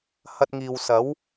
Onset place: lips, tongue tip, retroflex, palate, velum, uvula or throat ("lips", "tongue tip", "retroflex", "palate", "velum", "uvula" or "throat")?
throat